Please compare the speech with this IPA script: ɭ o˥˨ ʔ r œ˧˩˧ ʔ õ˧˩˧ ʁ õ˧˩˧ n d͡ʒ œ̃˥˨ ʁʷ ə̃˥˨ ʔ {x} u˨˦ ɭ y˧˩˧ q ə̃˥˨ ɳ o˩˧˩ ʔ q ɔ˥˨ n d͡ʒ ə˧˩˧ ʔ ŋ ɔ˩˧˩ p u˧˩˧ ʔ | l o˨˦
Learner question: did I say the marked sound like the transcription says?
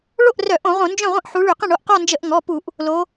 no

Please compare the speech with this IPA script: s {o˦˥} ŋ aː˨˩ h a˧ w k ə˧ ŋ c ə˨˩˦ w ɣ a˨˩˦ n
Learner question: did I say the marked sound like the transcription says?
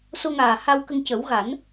no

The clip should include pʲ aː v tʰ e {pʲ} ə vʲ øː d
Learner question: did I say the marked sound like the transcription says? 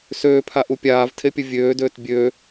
yes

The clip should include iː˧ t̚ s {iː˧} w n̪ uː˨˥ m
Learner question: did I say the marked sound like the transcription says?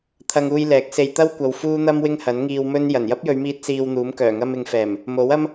yes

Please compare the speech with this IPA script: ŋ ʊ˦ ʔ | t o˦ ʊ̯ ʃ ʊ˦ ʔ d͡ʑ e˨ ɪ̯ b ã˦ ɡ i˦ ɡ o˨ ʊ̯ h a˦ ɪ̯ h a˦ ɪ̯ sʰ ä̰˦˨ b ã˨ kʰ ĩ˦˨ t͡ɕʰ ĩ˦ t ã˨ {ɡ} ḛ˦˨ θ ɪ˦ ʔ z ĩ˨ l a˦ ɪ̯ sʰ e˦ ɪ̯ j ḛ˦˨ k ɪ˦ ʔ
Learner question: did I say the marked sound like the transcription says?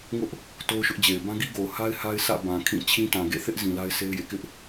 yes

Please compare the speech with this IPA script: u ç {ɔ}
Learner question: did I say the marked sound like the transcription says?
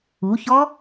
yes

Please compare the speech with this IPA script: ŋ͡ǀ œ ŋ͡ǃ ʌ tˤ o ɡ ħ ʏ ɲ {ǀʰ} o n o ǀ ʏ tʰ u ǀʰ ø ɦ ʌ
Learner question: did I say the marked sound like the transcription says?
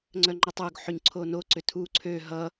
yes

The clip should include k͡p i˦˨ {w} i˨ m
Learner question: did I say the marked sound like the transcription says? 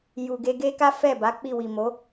yes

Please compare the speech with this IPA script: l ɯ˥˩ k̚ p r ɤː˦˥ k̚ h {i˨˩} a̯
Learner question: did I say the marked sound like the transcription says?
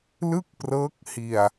no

